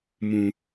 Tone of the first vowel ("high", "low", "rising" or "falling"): low